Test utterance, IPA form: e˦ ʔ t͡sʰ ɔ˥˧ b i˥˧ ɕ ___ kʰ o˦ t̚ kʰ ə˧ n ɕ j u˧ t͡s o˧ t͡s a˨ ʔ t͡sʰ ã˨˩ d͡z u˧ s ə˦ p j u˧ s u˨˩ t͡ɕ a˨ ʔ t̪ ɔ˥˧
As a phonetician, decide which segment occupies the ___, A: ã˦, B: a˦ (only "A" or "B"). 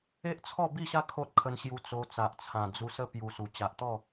B